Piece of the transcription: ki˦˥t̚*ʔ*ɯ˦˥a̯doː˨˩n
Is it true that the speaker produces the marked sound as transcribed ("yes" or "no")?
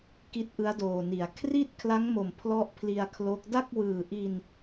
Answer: yes